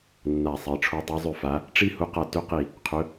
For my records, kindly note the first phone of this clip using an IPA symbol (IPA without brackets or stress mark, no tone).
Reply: nː